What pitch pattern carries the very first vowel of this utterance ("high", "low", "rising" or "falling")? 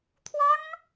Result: high